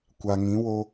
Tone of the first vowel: low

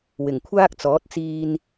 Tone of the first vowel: low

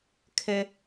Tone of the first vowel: high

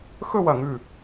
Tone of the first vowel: falling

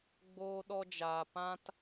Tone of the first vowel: high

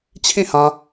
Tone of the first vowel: falling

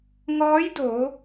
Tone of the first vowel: rising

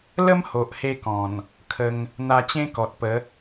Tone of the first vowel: high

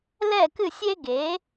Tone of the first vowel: falling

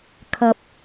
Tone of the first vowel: low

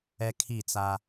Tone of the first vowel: high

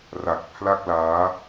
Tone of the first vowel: low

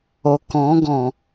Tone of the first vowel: low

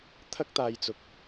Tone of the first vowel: high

